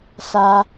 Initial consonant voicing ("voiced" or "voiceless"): voiceless